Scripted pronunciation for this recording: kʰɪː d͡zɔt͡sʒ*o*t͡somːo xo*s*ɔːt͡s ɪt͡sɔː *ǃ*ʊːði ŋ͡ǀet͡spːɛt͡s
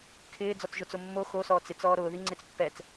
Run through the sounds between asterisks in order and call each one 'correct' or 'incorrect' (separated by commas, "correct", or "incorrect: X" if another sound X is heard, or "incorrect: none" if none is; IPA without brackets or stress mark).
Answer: correct, correct, incorrect: ɾ